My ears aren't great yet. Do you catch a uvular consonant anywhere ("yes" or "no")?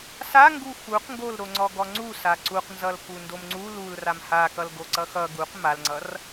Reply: yes